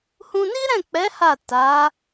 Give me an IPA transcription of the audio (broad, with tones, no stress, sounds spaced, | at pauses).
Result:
h ũ˧ n i˦ ɾ ɛ̃˦˨ k͡p ɛ˨˦ h a˦˨ t a˨˦